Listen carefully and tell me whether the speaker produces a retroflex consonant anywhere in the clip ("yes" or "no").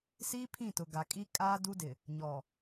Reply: no